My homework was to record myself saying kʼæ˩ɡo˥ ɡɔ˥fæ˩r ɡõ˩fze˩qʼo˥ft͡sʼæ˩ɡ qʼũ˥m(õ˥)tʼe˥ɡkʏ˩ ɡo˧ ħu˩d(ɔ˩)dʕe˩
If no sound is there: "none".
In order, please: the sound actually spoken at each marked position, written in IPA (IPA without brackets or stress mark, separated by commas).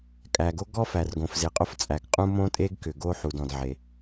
õ˥, ɔ̃˩